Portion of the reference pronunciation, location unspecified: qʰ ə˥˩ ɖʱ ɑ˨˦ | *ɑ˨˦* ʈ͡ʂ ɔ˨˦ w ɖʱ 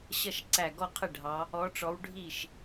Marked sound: incorrect: ɔ˨˦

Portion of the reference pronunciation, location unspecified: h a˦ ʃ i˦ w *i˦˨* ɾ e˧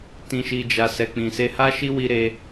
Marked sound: incorrect: i˧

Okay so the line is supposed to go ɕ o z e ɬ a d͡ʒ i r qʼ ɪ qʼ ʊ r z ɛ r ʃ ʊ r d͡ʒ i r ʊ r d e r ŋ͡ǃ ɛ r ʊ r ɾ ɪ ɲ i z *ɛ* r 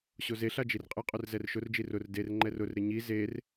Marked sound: incorrect: e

